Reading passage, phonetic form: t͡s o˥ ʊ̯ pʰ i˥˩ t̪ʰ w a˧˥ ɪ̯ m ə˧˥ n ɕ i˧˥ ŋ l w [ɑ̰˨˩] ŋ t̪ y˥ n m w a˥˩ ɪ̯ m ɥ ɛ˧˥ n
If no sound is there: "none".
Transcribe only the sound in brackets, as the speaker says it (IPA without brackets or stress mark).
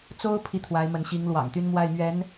ɑ̰˨˩